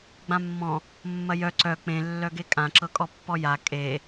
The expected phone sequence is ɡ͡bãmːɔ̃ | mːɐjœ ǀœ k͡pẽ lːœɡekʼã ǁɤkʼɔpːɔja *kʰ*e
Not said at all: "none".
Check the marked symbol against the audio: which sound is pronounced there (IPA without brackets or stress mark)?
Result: kʼ